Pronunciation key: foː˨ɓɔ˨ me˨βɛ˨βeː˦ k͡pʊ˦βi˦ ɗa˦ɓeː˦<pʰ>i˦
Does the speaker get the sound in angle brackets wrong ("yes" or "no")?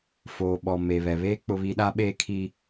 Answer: yes